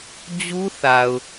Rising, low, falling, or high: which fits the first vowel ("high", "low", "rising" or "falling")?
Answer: high